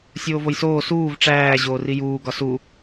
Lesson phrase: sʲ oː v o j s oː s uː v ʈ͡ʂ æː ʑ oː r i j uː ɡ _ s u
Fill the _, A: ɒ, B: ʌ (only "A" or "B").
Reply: A